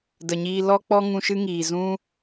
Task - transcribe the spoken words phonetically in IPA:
də˨ɲiː˧ lɔ˧k͡pɔ˧ ŋũ˧ʃɨ˦ŋiː˨ zũ˦

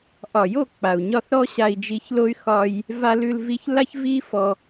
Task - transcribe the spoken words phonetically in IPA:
ʔɒ˨jo˦˨ k͡pa˨u̯ɲɒ˦˨θɾɔ˦ ɕa˧i̯ d͡ʒi˧çlo˦y̯ xɒ˦j | va˧lʉ˧lvi˧ç la˦çvi˦ fɔ˧

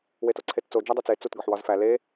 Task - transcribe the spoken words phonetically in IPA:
wetoǀʰett͡so d͡ʒædˤot͡se t͡sut ɡɒħwɒzfæ le

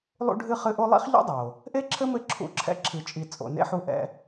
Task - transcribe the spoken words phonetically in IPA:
lˠṵ˥ɖʱɨ˥χɨ˦ʔo˥ lˠḭ˥χʎṵ˥dˤo˩ | ʔe˥ǁʰɘ˥mɘ˦ ǁʰṵ˦ǁʰɛ̰˥ ǁʰɨ˨t͡ʃʼi˨ t͡sʼo̰˨nḛ˥ħu˦ ʔɛ̰˦

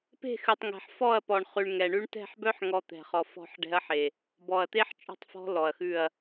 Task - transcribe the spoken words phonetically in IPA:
pe̤˦˨xʉ˨tˤŋɛ̤˨ħ fɔ˦˨ɐ̯pɔ˨ɳ χʉ˨ɳ ŋɛ˨ɳʉ˦ɳ tɛ̤˦˨ħbœ˦ħŋɔ˨ t̪ɛ̤˨χɔ˨fɔ̤˦˨ħ ɖɛ̤˦ɐ̯ħe˨ | bɔ˨ɐ̯t̪e˦ħ t͡ʃʼɔ̤˦tˤfɔ̤˦ lɔ˨ɐ̯xʉ˦˨ɐ̯

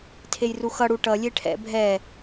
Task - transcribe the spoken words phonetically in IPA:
tʰejruxʌ ɽuʈʌ lʲeʈʰɛ̰ bʱɛ

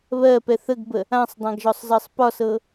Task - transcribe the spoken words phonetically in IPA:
βɜpɛ θəɡbə | ãsˤdˤãɡʒɔsˤzɜsˤ pɒsɤ

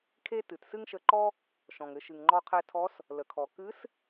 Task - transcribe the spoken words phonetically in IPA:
kʰe˥tɨ˩t sɨ˥ŋʃə˧ǃɔ˥ | ʃɔ̃˩ŋɘ˩˧ʃɨ˩ŋŋ͡ǃɔ˧ qʰɛ˧tʰɔ˧˥s | lə˩kʰɔ˩ kɨ˧˥s

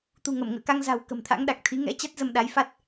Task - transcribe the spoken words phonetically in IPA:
t̪ṳ˨˩ŋə˧˩mŋə̰ː˧˨ka˧ŋ za̤˨˩w kə̤˨˩mt̪ʰa̰˧˥ŋɗa˨˩k̚t̪ʰi˨˦ ŋɛ̰˧˥t͡ɕa˦˥t̚ zə˧mɗa˨˦jfa˦˥t̚

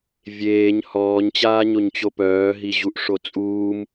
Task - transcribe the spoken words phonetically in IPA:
vʲeːɲ hɔːɲt͡ɕaːɲoɲt͡ɕo pœːɦiʑuʔ ʂot͡sʼuːm

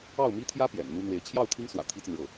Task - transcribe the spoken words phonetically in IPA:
ɑ˥˩ʊ̯ mi˥t̪ʰjä˥ pjɛ̰˨˩nn̪u˥n̪we˧˥ɪ̯ t͡ɕʰjɑ˥˩ʊ̯ t̪ʰi˥ŋswä̰˨˩ t̪ʰi˥t͡sə˨nɻɤ˥˩

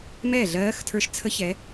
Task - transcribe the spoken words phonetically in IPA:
mɛː˥˩ɮɜː˧˥xtʰə˞˧˥ʃ t͡sʰə˧˥çɛ˩˧

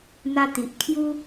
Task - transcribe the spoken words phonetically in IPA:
n̪a˧t̪i˨ʔkʰju˦

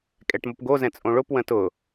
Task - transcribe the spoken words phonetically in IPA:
kʼɛʈmopɡo zɛ̃t͡sʼõɭʊp wə̃tʊ

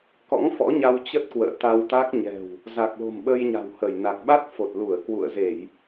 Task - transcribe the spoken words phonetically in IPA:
kɔ̰˧˥ŋfɔ̰˧˥ɲa˧w t͡ɕə˦˥t̚kwə̰ː˧˨t̪a˧wt̪a˦˥k̚ ɲɛ̤˨˩w | za˨˩k̚lo̤˨˩mɓə˧j ɲa̤˨˩whə˧˩jna˨˩k̚ ɓa˦˥t̚fo˨˩t̚lu˧˩ə̯ kwṵ˧˨ə̯ze˧˩˨j

